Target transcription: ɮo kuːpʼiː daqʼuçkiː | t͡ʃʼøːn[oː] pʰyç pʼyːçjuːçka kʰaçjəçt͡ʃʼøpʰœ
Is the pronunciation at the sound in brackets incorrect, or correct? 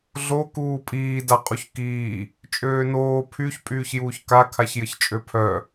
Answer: correct